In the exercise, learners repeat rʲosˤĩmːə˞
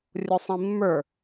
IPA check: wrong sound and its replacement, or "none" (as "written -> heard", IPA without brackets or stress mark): none